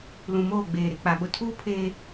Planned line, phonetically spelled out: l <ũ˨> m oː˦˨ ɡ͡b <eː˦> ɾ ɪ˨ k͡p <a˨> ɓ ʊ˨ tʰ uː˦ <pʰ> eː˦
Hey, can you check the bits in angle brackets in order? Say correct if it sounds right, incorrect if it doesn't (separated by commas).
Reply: correct, incorrect, correct, correct